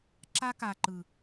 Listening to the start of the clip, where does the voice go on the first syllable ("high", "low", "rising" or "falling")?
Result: high